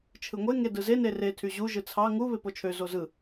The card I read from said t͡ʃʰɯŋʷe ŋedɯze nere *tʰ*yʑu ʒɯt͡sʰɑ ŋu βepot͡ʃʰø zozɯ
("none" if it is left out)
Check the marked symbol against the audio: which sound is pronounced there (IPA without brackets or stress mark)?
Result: tʰ